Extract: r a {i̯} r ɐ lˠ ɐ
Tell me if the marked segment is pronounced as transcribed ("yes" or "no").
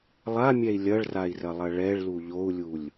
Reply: yes